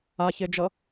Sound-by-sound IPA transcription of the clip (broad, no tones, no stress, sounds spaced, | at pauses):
a ç e d͡ʒ ʌ